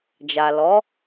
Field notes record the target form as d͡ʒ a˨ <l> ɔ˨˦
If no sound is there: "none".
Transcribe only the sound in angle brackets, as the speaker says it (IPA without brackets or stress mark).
l